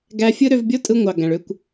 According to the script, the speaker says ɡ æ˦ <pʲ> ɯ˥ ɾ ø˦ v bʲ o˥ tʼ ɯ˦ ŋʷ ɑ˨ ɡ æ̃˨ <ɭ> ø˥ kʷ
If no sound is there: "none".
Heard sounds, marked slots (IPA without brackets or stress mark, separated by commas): fʲ, ɭ